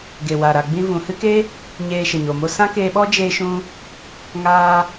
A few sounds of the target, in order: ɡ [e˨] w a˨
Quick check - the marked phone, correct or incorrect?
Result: correct